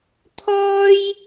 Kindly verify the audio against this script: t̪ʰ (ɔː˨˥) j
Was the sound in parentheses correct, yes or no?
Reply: no